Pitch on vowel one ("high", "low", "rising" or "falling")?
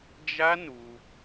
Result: high